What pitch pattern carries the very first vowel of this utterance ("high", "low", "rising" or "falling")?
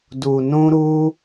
low